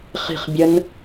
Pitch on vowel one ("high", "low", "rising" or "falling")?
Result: falling